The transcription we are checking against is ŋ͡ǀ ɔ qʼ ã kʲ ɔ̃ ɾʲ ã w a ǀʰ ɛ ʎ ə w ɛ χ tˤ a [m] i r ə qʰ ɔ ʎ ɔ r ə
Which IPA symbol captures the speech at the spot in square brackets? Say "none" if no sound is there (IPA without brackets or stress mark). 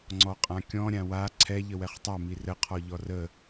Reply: m